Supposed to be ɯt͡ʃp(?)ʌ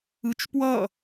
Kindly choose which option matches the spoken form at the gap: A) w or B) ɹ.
A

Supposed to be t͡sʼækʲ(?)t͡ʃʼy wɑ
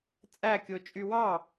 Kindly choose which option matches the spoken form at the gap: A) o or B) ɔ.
A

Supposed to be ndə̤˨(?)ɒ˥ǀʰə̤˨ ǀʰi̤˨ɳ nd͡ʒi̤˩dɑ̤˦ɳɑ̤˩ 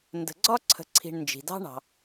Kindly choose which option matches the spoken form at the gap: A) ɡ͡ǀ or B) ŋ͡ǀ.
A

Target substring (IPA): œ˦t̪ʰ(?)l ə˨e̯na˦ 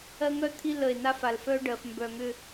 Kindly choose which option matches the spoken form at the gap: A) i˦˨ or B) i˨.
A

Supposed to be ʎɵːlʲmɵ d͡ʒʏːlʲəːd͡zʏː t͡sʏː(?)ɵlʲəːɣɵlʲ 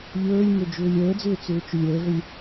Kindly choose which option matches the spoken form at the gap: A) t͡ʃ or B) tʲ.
A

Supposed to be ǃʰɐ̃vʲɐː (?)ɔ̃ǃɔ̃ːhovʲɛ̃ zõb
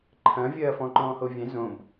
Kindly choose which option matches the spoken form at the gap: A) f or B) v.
A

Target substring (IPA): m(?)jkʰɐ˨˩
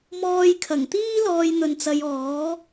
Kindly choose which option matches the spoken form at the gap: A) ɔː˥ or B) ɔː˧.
B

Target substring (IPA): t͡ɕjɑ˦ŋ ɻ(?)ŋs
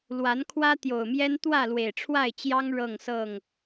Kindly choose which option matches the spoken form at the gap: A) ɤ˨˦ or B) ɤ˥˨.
B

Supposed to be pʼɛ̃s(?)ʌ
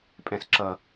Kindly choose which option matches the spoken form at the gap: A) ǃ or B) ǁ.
B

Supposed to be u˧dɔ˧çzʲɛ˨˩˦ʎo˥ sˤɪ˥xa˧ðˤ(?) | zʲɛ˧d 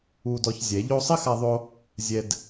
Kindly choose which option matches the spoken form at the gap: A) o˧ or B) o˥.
A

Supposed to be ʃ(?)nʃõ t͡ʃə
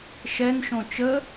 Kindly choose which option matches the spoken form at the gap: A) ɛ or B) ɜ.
A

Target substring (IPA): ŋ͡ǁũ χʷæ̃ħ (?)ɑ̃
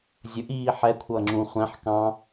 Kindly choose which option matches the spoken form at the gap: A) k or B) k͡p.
A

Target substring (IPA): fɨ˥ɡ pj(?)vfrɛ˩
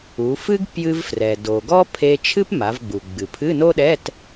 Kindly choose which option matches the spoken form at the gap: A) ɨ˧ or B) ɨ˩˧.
A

